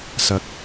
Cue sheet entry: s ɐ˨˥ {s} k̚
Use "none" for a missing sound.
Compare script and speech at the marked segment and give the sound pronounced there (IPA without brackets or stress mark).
none